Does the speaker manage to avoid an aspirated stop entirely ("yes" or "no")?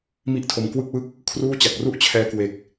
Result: no